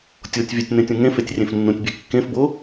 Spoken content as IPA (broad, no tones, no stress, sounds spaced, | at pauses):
tʲ o tʲ vʲ ɛ tʲ n ẽ tʲ ũ ŋ ẽ f e tʲ rʲ ẽ f nː ũ tʲ bʲ ɛ kː ẽ f b o